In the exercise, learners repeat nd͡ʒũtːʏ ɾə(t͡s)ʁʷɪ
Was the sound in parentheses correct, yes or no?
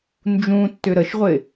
no